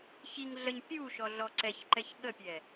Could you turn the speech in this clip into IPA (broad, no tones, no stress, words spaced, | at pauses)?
çiŋ ɮəɲ pʲuʃɔɮɔ ǀɛçǃɛç ɠəpʲɛ